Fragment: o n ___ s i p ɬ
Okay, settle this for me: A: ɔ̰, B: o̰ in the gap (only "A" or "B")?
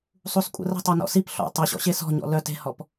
A